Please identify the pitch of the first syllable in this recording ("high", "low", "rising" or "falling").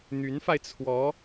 rising